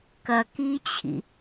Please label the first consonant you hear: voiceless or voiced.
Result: voiceless